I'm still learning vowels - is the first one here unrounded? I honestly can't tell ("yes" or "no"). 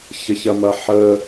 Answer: yes